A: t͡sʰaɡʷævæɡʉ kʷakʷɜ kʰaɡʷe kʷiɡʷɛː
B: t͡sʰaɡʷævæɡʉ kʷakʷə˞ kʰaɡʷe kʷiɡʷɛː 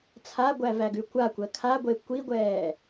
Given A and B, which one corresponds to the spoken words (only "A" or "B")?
A